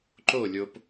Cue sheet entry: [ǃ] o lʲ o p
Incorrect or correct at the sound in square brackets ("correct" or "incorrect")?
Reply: correct